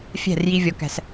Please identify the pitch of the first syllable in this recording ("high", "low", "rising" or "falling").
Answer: falling